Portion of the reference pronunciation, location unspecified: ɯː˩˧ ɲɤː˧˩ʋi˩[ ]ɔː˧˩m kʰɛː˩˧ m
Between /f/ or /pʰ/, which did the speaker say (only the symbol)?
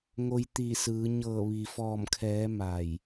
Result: f